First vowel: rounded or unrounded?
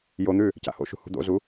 rounded